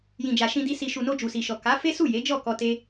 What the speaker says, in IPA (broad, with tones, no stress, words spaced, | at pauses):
jĩ˨d͡ʒa˨ʃĩ˧di˧ si˨ʃu˨no˧ d͡ʒu˨si˨ʃɔ˨ ka˨˦fe˦ su˦˨je˨˦d͡ʒɔ˦˨kɔ˧ te˦